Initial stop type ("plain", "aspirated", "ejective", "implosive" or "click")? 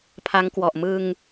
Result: aspirated